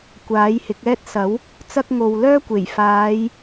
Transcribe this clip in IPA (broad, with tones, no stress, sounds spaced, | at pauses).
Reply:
kʷ aː˨˥ j h ɪ˨˥ k̚ ɛː˥ t̚ s ɐ˨˥ w | t͡s ɐ˥ k̚ ŋ o˨ w l œː˥ kʷ e˨˩ j f aː˨˧ j